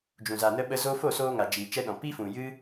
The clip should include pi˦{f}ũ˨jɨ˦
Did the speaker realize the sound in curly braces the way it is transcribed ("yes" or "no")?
yes